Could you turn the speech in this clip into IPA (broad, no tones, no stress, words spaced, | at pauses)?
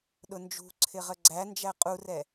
ɗʊnd͡ʒṳ ǀʰɪʁəɡ͡ǀæ nd͡ʒæqʼurɛ